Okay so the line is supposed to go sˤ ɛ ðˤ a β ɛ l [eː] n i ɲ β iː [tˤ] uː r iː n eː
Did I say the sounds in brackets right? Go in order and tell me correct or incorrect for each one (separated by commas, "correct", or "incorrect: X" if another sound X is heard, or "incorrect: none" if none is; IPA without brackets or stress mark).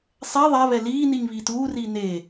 incorrect: iː, incorrect: t